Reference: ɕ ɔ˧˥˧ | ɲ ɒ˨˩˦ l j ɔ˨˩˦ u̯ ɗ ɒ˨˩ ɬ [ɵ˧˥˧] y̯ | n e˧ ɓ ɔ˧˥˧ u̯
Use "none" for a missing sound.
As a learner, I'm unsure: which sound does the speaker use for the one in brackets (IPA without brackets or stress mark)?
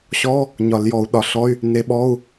ɔ˧˥˧